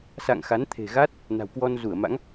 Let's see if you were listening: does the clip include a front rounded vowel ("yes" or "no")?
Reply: no